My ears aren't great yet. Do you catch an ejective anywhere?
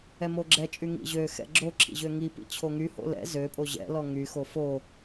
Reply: yes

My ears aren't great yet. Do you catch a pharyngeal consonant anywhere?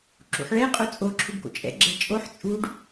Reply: yes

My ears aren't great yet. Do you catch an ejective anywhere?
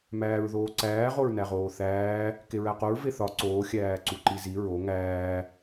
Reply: no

